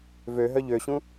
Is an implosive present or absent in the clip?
absent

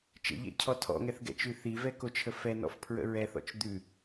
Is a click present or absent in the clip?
absent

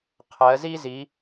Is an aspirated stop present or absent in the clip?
present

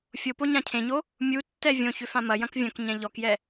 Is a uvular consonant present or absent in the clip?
absent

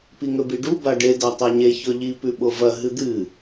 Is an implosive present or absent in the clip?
present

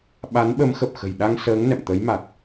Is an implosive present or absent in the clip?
present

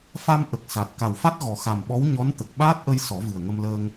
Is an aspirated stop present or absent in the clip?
absent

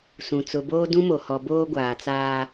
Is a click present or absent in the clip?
absent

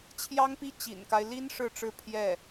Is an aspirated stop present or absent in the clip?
present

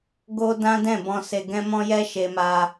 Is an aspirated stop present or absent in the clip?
absent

